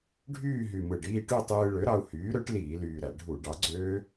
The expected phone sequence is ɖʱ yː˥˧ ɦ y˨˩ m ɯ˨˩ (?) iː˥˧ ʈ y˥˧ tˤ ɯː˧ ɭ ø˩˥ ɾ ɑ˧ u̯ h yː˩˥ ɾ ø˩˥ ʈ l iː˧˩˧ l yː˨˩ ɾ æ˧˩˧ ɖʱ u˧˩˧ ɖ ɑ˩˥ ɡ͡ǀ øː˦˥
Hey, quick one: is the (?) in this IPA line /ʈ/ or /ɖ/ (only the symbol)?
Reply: ɖ